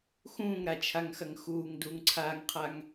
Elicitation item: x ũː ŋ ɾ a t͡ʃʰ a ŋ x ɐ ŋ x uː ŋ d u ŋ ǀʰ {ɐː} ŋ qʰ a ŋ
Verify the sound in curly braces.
incorrect: aː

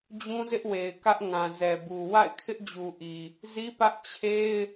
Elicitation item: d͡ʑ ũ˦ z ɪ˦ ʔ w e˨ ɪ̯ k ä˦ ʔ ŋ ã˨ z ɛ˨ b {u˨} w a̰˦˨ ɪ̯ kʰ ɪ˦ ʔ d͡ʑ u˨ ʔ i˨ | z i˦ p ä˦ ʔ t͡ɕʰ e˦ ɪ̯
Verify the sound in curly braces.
correct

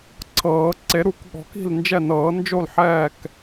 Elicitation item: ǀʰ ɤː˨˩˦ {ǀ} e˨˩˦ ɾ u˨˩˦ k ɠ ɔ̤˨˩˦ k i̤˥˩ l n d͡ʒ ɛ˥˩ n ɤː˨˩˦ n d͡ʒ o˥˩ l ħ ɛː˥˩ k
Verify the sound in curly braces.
correct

